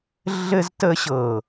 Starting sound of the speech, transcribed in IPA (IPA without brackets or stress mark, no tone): ɮ